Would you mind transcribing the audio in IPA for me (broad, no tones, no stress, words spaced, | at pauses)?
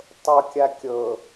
tˤɤkʲa kʲɤ